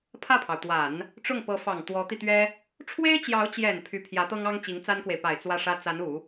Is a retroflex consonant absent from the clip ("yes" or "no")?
no